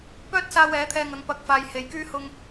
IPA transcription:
p œː˥ t̚ s aː˧ w ɛː˨˥ t̪ʰ ɛː˧ ŋ ɐ˨˧ ŋ p ɐ˨˥ k̚ f aː˨ j h e˨ j k yː˥ h ʊ˧ ŋ

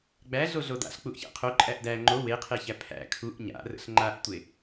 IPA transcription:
ɡ͡b æ ɮ o ɮ o d a̰ ɬ k͡p u ʔ ç æ̰ qʰ o ǃʼ æ ʔ d æ ŋ͡ǃ o w e qʰ e ç æ pʰ æ̰ kʰ u ʔ ɲ a̰ r ə̰ ɬ ŋ͡ǃ a ʔ tʷ e

